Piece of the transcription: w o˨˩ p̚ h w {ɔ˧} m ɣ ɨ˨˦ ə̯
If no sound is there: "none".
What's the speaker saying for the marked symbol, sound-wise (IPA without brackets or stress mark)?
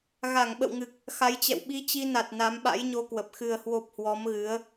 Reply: ɔ˨˦